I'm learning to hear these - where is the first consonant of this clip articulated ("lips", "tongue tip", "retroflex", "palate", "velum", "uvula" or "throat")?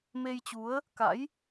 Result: lips